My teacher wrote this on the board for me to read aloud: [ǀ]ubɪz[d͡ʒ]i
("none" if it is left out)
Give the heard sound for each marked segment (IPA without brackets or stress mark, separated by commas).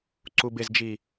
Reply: ǀ, d͡ʒ